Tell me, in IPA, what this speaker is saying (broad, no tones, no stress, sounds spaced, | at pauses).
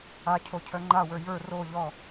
a cʰ o cʰ œ ŋ͡ǃ a w ə˞ j ə˞ r o ʎ ɔ